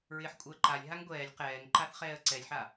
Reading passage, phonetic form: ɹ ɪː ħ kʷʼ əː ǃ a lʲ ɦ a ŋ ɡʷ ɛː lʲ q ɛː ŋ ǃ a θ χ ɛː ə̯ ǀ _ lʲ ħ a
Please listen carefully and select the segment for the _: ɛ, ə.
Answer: ɛ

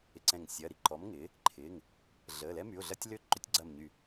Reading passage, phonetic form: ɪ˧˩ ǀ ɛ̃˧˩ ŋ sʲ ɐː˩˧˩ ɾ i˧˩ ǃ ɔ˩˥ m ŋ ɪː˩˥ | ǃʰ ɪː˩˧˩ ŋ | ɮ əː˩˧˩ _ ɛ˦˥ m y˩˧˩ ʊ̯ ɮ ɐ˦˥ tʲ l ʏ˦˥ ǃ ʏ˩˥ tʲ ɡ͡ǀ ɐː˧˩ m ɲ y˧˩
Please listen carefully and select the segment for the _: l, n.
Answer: l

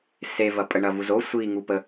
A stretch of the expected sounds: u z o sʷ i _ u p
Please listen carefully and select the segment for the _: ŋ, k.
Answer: ŋ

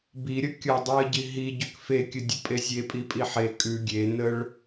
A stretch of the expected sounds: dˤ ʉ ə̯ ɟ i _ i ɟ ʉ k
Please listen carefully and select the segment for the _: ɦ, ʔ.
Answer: ɦ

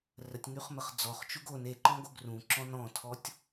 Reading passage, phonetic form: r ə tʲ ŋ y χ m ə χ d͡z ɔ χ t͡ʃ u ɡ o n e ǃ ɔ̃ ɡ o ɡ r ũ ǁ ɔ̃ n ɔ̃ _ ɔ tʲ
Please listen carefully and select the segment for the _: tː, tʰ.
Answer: tʰ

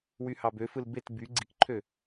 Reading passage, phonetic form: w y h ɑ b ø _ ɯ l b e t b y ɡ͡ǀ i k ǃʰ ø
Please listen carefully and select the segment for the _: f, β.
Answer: f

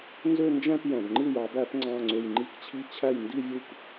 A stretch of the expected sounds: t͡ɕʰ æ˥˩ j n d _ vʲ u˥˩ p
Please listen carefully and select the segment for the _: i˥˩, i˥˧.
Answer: i˥˧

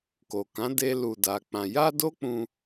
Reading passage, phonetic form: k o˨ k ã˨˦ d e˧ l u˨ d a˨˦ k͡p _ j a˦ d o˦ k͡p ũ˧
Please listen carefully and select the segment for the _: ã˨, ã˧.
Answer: ã˧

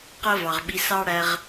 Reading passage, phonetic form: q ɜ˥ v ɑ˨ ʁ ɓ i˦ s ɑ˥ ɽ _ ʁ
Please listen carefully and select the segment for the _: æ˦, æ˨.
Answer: æ˦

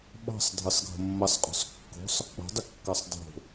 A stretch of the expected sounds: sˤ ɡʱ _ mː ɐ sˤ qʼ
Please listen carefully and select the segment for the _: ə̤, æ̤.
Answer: ə̤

